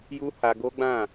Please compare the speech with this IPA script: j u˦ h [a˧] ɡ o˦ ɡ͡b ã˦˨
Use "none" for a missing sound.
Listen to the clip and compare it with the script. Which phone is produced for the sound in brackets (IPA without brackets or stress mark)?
a˧